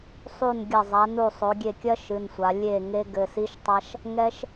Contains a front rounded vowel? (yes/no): no